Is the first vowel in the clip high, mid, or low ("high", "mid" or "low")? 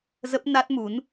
mid